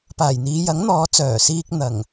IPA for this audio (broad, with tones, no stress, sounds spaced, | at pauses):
p aː˨˩ j n̪ iː˨˧ j ɐ˨˥ ŋ n̪ ɔː˨˧ t͡s œː˨˩ s iː˧ k̚ n̪ ɐ˨˩ ŋ